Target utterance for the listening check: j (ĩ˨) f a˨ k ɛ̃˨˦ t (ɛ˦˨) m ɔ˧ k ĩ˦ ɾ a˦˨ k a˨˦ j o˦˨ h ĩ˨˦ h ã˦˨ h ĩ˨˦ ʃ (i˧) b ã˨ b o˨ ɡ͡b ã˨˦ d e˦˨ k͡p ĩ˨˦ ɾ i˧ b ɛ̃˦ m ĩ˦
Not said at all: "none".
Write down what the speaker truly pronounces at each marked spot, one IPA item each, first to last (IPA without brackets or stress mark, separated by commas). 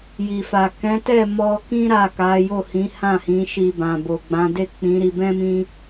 i˨, ɛ˦˨, i˧